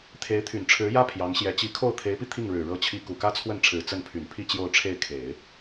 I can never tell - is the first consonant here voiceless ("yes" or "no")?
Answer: yes